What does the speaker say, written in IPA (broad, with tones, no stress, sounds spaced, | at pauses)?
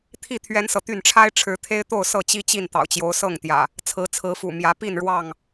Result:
t̪ʰ i˥˨ t̪ʰ ɥ ɛ˦ n s ɤ˨ t̪ y˥˨ n ʈ͡ʂʰ a˦ ɪ̯ ʈ͡ʂʰ ɻ̩˨˦ t̪ʰ e˦ ɪ̯ t̪ o˥˨ ʊ̯ s ɤ˥˨ t͡ɕ i˦ t͡ɕ i˥˨ n t̪ ɑ̰˨˩ ʊ̯ t͡ɕ j o˨˦ ʊ̯ s ɤ˥˨ ŋ t̪ j ä̰˨˩ | t͡sʰ ɹ̩˨˦ t͡sʰ ɹ̩˨˦ f ṵ˨˩ m j ä˨˦ p i˥˨ n ɻ w ɑ˥˨ ŋ